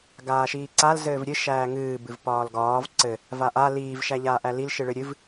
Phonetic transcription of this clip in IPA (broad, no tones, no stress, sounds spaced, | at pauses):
ɡ aː ʃ iː ǀ a l z ɘː v ɾʲ ɨ ʃ æː ŋ ɨː b ɨ v p ɒː l ɡ ɒː v ǀ ɘ | v a ʔ a l iː v ʃ æ ʎ aː ʔ æ l i l ʃ ɨ ɭ ɨ ɾʲ ɨ v